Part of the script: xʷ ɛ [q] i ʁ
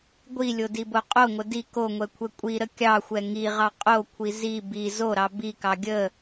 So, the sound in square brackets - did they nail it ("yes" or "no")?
no